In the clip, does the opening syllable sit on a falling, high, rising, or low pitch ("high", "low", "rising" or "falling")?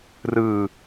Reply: low